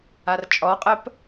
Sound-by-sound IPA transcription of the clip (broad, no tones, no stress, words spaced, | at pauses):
art͡ʃʼɔqʼəp